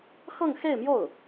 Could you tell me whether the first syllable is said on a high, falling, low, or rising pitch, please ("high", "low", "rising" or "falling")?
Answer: falling